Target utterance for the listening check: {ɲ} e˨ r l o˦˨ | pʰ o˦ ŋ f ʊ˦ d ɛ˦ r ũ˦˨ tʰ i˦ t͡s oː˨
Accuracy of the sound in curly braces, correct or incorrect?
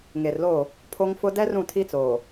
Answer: incorrect